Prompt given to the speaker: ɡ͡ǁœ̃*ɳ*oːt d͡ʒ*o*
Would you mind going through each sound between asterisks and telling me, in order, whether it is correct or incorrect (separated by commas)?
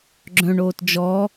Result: correct, incorrect